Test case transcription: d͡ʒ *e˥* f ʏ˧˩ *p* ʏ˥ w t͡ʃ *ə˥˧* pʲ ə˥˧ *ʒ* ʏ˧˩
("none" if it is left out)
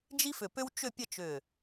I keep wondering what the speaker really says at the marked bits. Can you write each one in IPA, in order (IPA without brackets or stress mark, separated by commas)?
i˥, p, ʏ˥˧, t͡ʃ